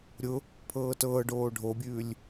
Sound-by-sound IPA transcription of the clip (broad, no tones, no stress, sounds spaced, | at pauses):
ɾʲ ʊ | pʰ ɤː t ɤː ɖ oː ɖʱ o bʲ ʉː lʲ